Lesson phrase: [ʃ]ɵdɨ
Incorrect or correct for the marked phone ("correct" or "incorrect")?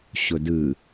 incorrect